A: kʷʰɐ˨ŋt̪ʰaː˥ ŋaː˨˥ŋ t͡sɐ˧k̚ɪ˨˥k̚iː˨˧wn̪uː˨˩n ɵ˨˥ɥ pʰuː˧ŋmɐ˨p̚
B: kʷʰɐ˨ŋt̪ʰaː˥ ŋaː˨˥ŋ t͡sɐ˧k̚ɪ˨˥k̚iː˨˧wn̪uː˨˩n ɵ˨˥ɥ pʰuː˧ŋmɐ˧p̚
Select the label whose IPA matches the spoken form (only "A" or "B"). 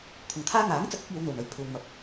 B